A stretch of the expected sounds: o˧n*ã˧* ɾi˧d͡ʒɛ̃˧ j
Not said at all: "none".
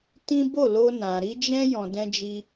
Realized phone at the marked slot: ã˨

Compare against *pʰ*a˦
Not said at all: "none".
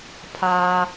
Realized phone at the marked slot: pʰ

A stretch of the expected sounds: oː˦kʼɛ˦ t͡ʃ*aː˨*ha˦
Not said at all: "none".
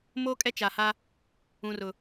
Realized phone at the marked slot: a˨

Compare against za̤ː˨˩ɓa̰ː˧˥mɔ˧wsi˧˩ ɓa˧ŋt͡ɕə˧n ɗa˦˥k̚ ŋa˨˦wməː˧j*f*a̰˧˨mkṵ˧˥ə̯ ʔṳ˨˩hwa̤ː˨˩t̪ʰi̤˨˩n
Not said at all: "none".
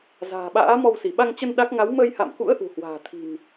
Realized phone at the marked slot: h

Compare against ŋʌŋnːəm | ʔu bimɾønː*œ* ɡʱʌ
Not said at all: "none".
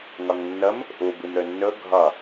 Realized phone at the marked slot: ɵ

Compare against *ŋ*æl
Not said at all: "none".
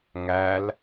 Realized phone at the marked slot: ŋ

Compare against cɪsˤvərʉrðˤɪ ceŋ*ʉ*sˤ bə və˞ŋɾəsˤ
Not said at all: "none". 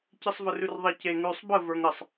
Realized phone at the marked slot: ʉ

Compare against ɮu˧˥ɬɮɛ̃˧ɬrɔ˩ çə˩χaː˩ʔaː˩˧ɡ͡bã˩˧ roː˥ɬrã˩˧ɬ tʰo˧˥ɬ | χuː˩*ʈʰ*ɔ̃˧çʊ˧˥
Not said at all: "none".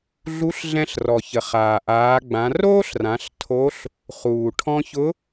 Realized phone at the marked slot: ʈʰ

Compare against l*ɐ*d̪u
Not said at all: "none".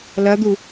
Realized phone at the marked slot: ɐ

